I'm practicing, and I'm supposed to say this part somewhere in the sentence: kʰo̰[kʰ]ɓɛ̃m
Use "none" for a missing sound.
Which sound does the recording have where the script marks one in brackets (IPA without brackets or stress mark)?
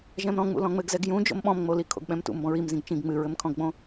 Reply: ɡ